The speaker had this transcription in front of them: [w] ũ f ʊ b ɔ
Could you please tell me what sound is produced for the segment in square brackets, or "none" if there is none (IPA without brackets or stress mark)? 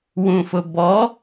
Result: w